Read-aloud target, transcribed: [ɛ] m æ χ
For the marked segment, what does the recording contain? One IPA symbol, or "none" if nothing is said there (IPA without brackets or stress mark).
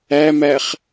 æ